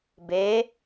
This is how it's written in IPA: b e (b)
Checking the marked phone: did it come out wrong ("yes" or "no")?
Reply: yes